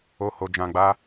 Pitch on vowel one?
high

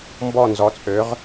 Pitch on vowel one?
falling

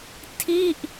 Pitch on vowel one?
falling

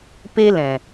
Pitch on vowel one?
high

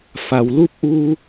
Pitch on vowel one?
low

